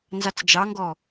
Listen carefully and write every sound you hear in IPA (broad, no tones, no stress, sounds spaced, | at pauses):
n z ɑ t͡s d͡ʒ ɑ ŋ ɡ ɔ